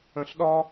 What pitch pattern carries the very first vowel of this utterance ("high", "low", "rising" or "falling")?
low